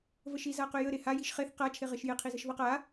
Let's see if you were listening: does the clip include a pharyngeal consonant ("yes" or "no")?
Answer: no